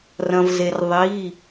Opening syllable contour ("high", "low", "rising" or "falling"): low